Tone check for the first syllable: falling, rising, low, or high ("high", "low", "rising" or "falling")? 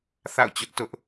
falling